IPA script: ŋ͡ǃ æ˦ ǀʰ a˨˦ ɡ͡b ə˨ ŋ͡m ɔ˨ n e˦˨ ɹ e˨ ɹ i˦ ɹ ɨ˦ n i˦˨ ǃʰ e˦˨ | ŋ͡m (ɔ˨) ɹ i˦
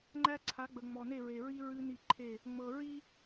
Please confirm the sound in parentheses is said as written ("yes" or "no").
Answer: no